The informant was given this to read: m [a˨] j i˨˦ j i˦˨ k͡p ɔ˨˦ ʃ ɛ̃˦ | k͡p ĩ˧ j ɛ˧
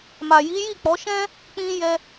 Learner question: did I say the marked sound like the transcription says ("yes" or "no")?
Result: yes